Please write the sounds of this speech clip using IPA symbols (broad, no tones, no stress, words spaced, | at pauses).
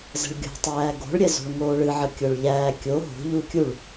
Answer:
zə̤ɭɡʲo̤tˤæː ɡo̤ɭɾʲɛzo̤ɭ ŋoːɭɨʕə kʲoɭʎæː kʲo ɦo̤ʎu kʲuɭ